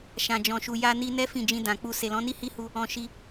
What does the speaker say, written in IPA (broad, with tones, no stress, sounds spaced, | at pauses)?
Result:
ʃ ã˨ d͡ʒ ɔ̃˨ ʃ u˨ j a˧ n i˧ n ɛ˦ f ĩ˦˨ d͡ʒ ĩ˧ d ã˨ k͡p u˧ s e˨ l ɔ̃˨˦ n i˦ h i˦ h u˧ | ɔ̃˧ ʃ i˧